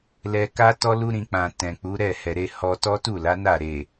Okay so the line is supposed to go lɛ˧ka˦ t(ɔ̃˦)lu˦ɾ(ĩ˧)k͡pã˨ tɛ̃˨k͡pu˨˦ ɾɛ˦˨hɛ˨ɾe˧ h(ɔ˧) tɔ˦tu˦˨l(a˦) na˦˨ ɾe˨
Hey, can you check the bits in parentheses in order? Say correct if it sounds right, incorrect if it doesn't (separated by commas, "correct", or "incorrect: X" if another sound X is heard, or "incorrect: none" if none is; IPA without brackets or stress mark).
incorrect: ɔ˦, correct, incorrect: ɔ˦, incorrect: a˨˦